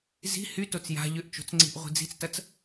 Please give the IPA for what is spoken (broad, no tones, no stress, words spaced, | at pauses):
zi̤ hytot͡s ja̤ ʎʏʔt͡ʃo̤t͡sŋ͡ǀi̤ʔ ʁʷi̤d͡zi̤t͡stɐt͡s